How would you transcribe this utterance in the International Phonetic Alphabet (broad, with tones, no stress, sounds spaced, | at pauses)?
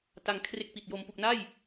t a˧ ŋ kʰ r e˦˥ k̚ p i˨˩ t̚ j o˧ m p u˨˩ k̚ n a˥˩ j